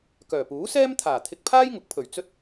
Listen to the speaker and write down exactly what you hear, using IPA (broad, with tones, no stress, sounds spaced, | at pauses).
k œː˨˩ p uː˨˥ s ɛː˥ m t̪ʰ aː˨˩ t̪ʰ ɪ˧ k̚ pʰ aː˥ j ŋ ʊ˨˥ k̚ pʰ ɵ˨˩ ɥ t͡s ɵ˥ t̚